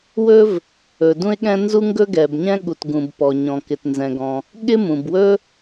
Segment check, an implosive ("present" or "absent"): present